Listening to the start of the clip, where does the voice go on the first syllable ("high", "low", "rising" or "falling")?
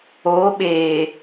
rising